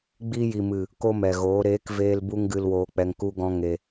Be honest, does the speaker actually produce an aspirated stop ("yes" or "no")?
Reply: no